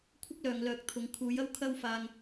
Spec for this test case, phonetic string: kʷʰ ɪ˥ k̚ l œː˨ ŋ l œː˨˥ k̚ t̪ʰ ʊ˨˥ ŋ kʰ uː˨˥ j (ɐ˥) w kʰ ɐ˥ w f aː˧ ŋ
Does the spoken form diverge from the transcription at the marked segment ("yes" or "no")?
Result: no